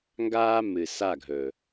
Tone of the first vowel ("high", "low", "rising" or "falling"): high